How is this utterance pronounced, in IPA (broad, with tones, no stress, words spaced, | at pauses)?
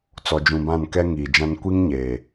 t͡sɔ˨d͡ʒũ˨bã˦˨n kɛ˦ŋiː˨d͡ʒã˦n kʷi˦ŋɲeː˨